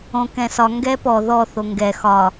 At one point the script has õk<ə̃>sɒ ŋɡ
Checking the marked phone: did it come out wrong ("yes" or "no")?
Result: yes